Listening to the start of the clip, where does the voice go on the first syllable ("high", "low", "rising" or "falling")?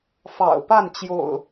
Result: low